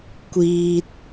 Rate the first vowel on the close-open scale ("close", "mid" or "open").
close